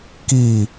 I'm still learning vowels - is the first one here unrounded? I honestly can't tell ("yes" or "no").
yes